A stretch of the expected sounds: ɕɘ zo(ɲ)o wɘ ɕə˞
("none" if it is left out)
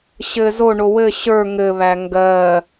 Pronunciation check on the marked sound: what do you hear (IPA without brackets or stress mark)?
ɳ